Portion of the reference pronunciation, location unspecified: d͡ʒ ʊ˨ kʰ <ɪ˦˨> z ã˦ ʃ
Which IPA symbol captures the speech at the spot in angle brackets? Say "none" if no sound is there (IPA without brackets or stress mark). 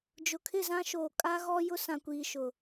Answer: ɪ˦˨